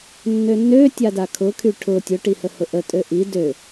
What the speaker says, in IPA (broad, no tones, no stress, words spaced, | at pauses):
nːønːøtʲada kʰʊkʰy ʈʰʊ tʲʊʈihə hʊʔə tʼøʔi dø